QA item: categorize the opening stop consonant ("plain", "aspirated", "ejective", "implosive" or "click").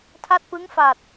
aspirated